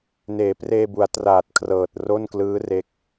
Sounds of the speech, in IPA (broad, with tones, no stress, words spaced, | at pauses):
neː˩˦preː˧bu˩˦a̯ traː˨˩t̚kʰrɤː˨˩t̚ro˥˩nklɯː˦˥ re˦˥k̚